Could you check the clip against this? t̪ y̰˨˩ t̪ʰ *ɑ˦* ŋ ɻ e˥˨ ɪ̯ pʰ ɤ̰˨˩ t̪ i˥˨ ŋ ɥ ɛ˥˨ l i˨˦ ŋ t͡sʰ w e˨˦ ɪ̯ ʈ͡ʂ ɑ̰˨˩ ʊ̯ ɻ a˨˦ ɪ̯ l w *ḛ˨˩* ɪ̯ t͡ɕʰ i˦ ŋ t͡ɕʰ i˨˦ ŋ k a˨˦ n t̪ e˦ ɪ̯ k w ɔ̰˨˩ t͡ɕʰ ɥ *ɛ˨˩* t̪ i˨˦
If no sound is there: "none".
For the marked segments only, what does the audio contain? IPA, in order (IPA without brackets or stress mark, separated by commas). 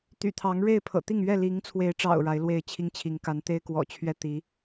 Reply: ɑ˨˦, e˥˨, ɛ˥˨